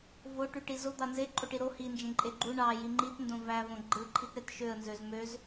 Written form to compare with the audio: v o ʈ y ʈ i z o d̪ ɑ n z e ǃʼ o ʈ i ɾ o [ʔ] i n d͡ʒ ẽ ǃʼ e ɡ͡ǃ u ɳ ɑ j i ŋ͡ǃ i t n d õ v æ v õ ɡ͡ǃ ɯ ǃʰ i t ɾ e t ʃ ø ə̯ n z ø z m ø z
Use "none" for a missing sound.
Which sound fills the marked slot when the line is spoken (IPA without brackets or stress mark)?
h